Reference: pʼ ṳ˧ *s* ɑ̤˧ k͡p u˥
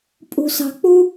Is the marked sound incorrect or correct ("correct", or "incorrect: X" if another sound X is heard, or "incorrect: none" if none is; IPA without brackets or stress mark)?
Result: correct